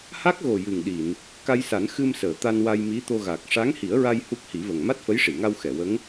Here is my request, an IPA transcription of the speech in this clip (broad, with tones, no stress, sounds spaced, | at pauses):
h a˦˥ k̚ ɣ o˨˩ j ɨ˨˩ ŋ ɗ i˨˩˨ n | k a˧ j s a˨˩˦ n x ɨ˧ m s əː˨˩˨ t̪ a˧ n w a˧ j m i˧˥ t̪ o˧ ɣ a˨˩ k̚ ʂ a˧˥ ŋ h i˨˩˦ ə̯ ɹ a˧ j h u˦˥ k̚ h i˨˩˦ v ə˨˩ ŋ m a˦˥ t̚ f ə˧˥ j ʂ i˨˩˨ ŋ a˧ w x ɛ˨˩˨ w ə˧˥ ŋ